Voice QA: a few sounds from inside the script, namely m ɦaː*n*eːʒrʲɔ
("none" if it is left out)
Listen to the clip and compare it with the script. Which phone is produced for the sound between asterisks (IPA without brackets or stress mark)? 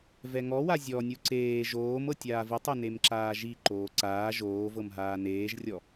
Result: n